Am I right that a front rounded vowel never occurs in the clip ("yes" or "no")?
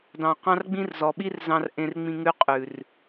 yes